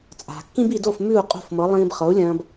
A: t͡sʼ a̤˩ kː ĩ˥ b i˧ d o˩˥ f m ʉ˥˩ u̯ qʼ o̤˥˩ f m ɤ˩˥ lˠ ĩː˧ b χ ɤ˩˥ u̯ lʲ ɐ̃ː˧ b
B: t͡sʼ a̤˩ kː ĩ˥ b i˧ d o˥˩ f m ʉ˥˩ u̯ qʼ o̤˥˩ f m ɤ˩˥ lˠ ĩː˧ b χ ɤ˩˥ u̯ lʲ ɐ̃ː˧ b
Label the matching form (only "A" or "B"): B